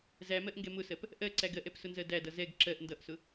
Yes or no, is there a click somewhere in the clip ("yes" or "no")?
yes